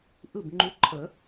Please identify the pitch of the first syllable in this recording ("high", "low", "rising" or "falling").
falling